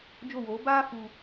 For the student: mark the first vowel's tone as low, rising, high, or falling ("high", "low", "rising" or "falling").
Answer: falling